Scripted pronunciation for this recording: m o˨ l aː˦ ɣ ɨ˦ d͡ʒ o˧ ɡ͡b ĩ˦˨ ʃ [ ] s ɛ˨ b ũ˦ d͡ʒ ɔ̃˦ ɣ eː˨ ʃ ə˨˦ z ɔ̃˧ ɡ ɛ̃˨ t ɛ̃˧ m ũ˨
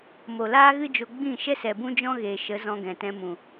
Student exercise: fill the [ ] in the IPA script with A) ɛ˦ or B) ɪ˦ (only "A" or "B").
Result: A